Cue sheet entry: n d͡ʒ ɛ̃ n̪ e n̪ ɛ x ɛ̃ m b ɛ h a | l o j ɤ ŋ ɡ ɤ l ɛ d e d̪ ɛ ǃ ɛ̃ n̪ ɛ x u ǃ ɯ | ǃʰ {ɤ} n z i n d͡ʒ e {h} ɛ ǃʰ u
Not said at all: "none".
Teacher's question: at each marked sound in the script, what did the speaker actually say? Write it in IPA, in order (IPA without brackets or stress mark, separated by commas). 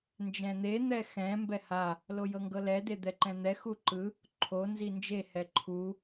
o, h